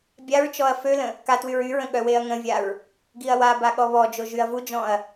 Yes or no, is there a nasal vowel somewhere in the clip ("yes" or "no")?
yes